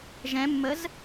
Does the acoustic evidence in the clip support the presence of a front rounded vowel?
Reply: no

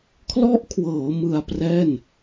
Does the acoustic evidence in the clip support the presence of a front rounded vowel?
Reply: no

